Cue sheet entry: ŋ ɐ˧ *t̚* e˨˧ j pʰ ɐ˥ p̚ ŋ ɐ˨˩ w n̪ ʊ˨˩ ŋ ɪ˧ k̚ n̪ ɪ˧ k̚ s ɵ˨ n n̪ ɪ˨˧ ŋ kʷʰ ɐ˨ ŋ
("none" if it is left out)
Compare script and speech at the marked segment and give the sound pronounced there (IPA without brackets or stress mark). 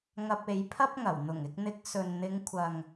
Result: p̚